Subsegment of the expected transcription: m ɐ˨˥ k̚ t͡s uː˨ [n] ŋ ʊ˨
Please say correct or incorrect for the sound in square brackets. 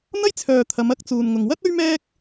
correct